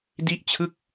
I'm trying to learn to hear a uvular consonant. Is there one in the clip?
no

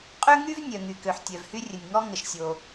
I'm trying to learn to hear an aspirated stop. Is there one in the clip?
no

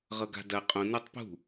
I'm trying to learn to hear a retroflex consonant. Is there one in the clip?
no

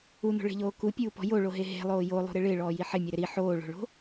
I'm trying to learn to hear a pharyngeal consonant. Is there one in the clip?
yes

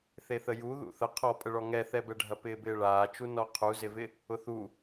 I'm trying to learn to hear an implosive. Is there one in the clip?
no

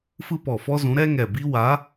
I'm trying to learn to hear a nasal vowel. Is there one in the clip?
yes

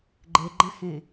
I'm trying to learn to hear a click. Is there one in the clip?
yes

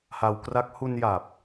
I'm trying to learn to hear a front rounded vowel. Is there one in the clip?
no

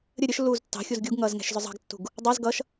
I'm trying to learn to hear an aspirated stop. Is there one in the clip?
no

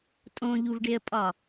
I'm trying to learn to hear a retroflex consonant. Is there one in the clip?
yes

